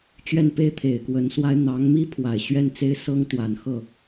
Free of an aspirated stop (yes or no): no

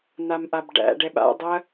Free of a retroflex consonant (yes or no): no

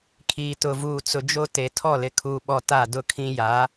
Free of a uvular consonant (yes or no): yes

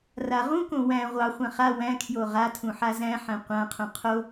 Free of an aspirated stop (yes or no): no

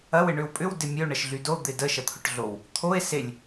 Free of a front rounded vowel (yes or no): no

